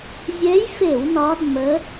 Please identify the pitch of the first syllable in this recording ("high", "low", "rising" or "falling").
rising